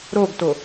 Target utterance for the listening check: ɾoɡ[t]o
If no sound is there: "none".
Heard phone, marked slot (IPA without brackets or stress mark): t